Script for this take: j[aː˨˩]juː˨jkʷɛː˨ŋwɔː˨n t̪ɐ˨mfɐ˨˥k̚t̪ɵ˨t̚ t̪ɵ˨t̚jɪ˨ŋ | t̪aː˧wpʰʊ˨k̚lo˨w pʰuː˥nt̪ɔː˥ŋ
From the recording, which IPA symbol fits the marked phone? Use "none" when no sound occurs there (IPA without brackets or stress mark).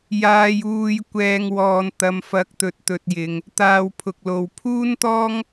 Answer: aː˨